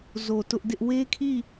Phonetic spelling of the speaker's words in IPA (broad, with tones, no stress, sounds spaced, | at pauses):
z o˨ t ʊ˦ ʔ d ɪ˦ ʔ w e˦ kʰ i˦˨